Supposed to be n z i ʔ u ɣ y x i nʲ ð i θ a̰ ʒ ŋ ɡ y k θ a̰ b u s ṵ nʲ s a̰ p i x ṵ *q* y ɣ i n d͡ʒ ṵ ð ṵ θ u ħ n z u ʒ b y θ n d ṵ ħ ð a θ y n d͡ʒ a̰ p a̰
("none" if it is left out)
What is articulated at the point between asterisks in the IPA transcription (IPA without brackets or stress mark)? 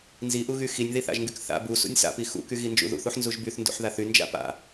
k